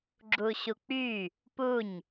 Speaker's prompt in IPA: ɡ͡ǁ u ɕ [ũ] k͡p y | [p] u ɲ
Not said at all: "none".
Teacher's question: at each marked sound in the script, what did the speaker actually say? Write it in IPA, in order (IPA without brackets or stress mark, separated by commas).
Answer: u, p